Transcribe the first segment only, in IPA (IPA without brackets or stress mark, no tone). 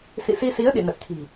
s